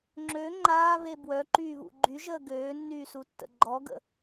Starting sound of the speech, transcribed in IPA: ŋ͡ǁ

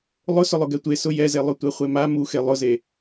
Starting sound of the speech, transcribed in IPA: lˠ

